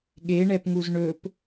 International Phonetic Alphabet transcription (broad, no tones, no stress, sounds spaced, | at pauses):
ɠ e ɳ ɛ p ŋ u z ɳ ɵ p